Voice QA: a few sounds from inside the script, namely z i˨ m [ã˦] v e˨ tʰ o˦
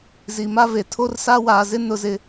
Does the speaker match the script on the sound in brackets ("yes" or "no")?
no